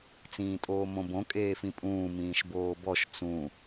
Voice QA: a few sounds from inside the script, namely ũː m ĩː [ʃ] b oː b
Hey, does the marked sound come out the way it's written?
yes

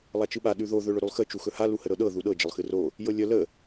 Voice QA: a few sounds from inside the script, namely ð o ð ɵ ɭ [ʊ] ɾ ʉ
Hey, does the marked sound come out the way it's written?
no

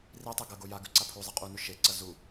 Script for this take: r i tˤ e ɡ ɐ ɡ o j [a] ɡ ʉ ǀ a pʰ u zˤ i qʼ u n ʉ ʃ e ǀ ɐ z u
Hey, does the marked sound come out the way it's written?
yes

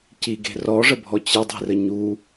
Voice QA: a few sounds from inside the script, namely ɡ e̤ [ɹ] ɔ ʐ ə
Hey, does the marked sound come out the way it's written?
no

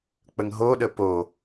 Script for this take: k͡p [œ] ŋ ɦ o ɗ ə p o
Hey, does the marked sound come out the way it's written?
no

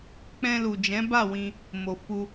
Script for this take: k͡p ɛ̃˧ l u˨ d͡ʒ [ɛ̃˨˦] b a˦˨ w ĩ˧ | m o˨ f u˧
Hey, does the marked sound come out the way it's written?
yes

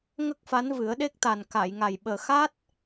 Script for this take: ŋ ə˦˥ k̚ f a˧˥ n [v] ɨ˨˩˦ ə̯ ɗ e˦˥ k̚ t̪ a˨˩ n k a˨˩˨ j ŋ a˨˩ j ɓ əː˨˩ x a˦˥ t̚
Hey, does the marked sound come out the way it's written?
yes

